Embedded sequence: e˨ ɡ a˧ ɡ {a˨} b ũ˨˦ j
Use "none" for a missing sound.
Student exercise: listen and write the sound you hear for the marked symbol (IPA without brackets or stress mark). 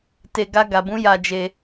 a˨